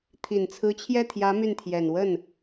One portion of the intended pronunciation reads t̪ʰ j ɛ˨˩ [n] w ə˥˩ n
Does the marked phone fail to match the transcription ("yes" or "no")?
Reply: no